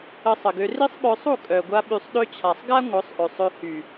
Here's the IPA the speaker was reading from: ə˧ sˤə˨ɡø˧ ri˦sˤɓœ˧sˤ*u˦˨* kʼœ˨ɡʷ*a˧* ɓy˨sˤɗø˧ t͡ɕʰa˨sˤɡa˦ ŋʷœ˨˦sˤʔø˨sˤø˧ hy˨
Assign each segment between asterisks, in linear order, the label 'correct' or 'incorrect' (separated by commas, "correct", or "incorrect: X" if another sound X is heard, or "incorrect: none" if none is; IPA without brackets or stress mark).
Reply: correct, correct